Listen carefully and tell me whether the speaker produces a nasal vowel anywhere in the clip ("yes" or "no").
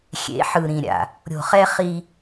yes